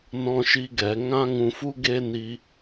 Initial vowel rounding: rounded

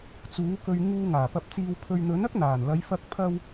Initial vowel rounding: rounded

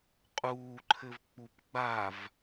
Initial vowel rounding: rounded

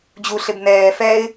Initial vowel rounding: rounded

